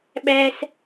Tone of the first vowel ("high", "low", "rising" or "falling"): high